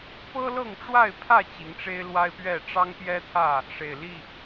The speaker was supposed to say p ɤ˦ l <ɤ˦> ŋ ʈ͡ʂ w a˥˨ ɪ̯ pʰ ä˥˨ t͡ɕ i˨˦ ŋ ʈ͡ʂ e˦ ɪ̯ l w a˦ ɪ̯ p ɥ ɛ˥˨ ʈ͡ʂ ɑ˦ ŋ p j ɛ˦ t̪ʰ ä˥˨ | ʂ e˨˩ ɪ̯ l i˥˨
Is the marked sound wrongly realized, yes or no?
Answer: yes